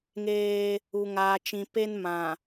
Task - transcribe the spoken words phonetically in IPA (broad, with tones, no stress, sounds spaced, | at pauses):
ŋ eː˦ | u˨ ŋ aː˨ t͡ʃ ĩ˨ p e˦ n m ã˨